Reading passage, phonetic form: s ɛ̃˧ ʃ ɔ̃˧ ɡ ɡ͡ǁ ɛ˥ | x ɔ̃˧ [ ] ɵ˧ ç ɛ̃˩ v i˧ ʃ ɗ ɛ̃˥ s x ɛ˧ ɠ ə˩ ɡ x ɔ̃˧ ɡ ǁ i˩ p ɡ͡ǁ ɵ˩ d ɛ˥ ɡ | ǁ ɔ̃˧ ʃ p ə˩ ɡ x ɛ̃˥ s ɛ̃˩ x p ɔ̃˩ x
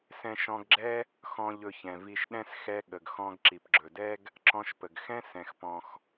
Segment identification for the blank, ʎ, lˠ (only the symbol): ʎ